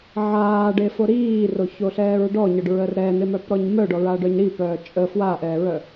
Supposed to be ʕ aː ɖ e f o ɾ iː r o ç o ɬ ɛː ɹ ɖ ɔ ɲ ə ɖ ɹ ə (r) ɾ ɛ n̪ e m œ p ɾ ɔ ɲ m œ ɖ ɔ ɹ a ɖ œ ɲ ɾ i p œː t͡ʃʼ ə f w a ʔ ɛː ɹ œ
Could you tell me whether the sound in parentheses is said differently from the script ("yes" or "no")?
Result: no